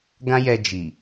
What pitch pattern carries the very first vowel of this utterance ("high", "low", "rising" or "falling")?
high